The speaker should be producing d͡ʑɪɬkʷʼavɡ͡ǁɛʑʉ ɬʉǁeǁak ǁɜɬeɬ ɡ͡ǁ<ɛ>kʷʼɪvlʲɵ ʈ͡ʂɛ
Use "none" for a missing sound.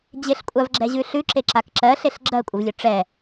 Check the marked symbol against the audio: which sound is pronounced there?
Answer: ɜ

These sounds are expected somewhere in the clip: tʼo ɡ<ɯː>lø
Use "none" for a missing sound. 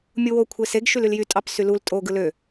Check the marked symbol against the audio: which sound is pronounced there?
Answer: ɯ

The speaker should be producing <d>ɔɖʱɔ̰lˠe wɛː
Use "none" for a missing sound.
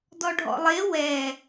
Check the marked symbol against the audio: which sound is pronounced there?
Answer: d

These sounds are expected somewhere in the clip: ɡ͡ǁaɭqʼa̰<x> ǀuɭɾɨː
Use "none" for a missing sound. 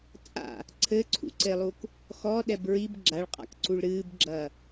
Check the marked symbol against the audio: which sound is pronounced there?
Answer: k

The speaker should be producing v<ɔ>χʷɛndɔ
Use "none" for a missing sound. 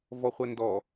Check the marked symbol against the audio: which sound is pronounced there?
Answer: ɔ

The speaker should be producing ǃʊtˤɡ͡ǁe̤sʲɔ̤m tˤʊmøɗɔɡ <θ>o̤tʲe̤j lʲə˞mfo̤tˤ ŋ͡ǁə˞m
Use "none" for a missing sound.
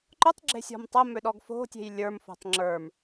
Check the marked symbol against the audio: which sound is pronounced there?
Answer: f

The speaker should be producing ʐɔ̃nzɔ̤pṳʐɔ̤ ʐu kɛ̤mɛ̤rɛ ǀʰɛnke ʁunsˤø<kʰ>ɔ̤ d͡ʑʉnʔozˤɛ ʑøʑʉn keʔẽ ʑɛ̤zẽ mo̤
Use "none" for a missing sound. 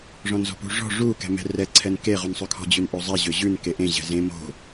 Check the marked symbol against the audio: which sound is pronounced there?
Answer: kʰ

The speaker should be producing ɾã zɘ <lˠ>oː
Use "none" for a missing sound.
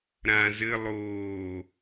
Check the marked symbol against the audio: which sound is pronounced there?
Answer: lˠ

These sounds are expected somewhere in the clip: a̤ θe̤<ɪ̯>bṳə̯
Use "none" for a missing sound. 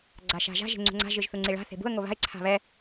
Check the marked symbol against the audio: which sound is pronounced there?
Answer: none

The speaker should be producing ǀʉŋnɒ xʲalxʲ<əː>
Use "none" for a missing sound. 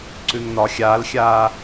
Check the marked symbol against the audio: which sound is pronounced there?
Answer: aː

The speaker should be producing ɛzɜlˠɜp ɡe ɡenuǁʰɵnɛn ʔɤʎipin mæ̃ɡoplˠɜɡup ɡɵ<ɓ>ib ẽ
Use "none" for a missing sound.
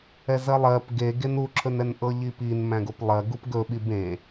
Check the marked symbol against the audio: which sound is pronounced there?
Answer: ɓ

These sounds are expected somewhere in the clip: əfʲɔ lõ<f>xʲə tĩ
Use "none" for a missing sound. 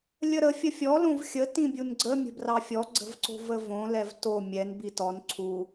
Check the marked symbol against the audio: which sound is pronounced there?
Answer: v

